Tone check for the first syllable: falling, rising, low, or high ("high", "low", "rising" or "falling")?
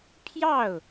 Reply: falling